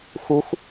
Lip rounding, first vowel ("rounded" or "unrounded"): rounded